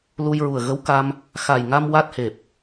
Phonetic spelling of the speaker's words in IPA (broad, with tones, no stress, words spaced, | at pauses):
lu˧jɹu˨˩ə̯ɣə˧˥wka˧m | xa˨˩jŋa˧m wa˦˥t̚he˨˩p̚